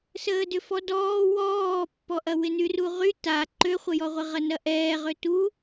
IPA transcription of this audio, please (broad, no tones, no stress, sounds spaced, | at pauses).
s əː d ʏ f ɔ d ɔː w ɔː pː ɔ ʔ ɐ w ɪ n y r u ʁ y t a ǃ ø χʷ ə j ɔ ʁʷ ɪ ʁ ɐ n ɐ ʔ ɛː ʁ ø t u